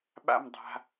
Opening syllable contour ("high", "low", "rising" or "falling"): falling